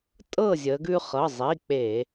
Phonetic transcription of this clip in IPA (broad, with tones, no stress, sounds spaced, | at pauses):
tʼ ɤ˥˨ zʲ ə˩˧ ɡ ʉ˦ χ ɤ˩˧˩ zˤ i˩˧˩ k͡p e˧˩˧